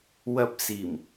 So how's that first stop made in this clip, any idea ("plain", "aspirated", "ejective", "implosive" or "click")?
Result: plain